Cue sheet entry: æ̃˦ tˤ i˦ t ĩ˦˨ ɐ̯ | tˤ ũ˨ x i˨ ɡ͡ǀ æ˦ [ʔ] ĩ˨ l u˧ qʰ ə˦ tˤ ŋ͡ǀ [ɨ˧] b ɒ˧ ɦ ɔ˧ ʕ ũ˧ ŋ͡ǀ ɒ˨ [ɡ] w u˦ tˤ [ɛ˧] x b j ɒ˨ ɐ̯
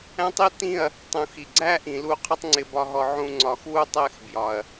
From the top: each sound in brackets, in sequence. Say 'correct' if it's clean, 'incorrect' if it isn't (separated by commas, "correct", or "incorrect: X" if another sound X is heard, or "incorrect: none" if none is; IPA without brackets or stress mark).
correct, incorrect: ɪ˧, incorrect: x, incorrect: ɛ˦˨